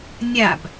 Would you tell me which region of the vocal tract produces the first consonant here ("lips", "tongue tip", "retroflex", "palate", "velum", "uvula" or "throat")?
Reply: tongue tip